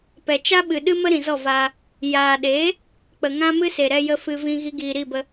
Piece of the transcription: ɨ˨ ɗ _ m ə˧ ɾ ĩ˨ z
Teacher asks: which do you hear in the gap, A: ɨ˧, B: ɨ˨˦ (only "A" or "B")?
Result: A